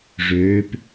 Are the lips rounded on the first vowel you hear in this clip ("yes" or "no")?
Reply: yes